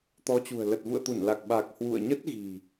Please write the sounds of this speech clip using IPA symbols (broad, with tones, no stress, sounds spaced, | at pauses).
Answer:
t̪ ɔ˨˦ t͡ɕ ṳ˨˩ ə̯ l ə˨˩ t̚ v ṵ˧˨ ə̯ t̪ u˧˩ n l a˨˩ k̚ ɓ a˨˩ k̚ h w ṵ˧˨ ə̯ ɲ ə˦˥ t̚ ɣ i̤˨˩